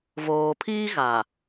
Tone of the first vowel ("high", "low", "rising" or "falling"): low